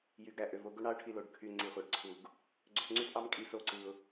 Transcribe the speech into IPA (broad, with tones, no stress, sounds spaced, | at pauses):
j y˨ ɡ ɾ æ˨ ʔ ø˨ v o˧ ɡ o˦ ɳ ɑ˦ ʊ̯ ʈʰ i˧ l o˧ ɖ kʰ y˧ ŋ͡ǀ i˧ χʷ ɑ˧ ɖ ǀʰ u˧ ɡ | ɡ͡ǀ ø˧ s ŋ͡ǀ y˦ s ʔ ɑ˦ m kʼ i˧ s o˦ ǀ ɯ˧ ʊ̯